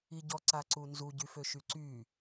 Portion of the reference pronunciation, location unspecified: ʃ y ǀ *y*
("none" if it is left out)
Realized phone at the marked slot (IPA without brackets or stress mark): y